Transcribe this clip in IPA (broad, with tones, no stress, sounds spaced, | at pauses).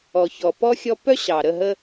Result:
ɔ˨ ç ɔ˨ p ɔ˦ xʲ ɔ˦ p œ˦ ɕ ɑ˨ ɾ ə˦˨ ɦ ə˦